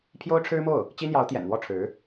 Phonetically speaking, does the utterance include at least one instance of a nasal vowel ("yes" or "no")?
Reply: no